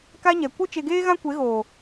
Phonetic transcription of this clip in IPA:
ka˦ɲɛ˨ kʷɨ˦ t͡ʃe˧ɡeː˦ɣã˦ kʷe˨˦ɣoː˨

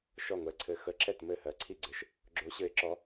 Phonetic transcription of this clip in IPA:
ʃɔ˥˨ŋʷɛ˧˥ǀʰɘ˧˥ xə˧˥ǁɛ˥˨t mɘ˥˨hɜ˧˥ ǀʰi˥˨ɡ͡ǀɘ˧˥ʃ | ɡ͡ǁo˧˥ɕɘ˧˥ɪ̯ǁɔ˧˥

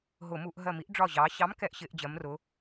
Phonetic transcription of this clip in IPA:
ɦʊ˧˩˧mu˧˩˧ʔ ɦɜ˧˩mi˨˥ʔ ɖ͡ʐɒ˧˩ʑɑː˩˧ɕɑ˨˥m kɛ˨˥ʔɕɪː˩˧ʔ d͡ʑɜ˩˧mrʊ˩˧

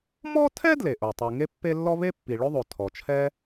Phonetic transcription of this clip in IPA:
mɔ˥tʰɛ˥ dle˩ʔo˩ tˤu˩ ŋe˥pːe˥ lːɔ˥ βe˥pːi˩ ɭɵ˥ðˤo˩ tʰɔ˩t͡ʃʰɛ˥

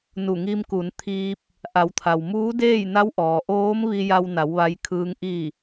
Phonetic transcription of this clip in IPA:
nu˧˩ŋi˧mku˩˧nt̪ʰiː˧p̚ | ʔa˩˧wt̪ʰa˩wmuː˧˥deː˥˨j na˧˥wʔɔː˩ ʔoː˧˥m ʋi˧ja˧wna˩˧w ʋa˧jkʰɯː˧ŋ ʔi˧˩

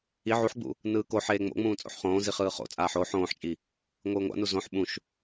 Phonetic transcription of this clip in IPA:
i ʕuħɡ͡bṵ | nɯːkoħeː ŋ͡mo̰ŋ͡mũː t͡sʼo̰ħχõːzi χɯːχo̰t͡sʼaːħ o ħõːħt͡ʃʼi | ŋʷɯːŋʷa̰nu zõħ ɓũʃ

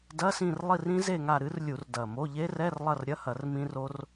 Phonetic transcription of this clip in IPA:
dɐ˧˥˧sĩ˦˨rlˠi˦˨r ĩ˦˥ze˦˨ŋa˦˨ ɾɨ˦˥rlʲu˧˩˧r dɐ˨˩mo˧˥˧ ʎe˦˥rɛ˧˥˧r lˠɐ˦˨rɾʲɐ˧˥˧hɐ˧˩˧r mĩ˦˥ro˦˥r

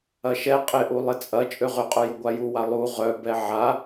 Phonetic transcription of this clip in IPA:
ɐʃɛ qʼɪʔu lˠɪt͡sʼɐ t͡ʃʼøʁʏqʼʊ jʊɡʷajuwa lˠu ʁœbɛ ʕa

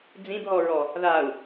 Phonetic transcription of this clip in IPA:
d͡zĩbɦɔɹɔ | ðau̯

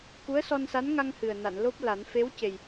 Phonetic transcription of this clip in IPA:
ku˧˥ə̯sɔ˧nsa˧˥nŋa˧ŋ hɨ˨˩ə̯na˨˩˨n lo˦˥p̚la˨˩˦n fe˧˥wce˨˩j

